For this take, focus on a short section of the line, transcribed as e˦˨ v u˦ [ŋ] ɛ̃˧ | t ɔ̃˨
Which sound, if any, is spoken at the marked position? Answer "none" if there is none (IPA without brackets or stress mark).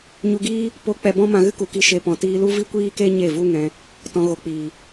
ŋ